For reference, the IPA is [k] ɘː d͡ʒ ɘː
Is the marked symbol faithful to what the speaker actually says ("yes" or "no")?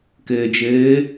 yes